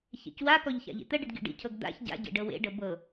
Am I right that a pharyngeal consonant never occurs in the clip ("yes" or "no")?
yes